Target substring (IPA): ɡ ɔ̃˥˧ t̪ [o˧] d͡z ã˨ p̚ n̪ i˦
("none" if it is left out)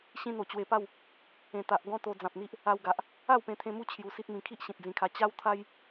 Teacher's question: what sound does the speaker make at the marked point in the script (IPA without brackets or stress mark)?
o˧